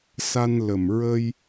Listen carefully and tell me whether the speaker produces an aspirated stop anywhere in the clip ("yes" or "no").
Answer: no